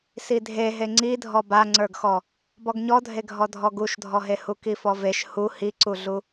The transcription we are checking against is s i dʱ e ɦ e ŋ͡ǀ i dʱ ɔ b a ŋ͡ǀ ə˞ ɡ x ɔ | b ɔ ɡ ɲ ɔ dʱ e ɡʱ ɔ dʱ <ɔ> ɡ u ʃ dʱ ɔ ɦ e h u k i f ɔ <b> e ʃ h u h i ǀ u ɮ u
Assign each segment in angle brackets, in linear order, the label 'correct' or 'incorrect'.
correct, incorrect

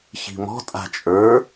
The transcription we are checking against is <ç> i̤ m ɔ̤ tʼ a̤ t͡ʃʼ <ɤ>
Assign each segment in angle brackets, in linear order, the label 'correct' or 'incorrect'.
correct, incorrect

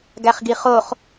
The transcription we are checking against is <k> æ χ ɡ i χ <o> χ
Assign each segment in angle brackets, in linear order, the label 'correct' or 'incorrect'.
incorrect, correct

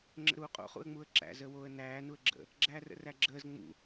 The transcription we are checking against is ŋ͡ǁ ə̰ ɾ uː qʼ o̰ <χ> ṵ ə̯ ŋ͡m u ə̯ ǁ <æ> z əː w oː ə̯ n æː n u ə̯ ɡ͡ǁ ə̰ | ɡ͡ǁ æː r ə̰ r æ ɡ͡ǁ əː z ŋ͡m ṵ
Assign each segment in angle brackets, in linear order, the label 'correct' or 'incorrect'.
correct, incorrect

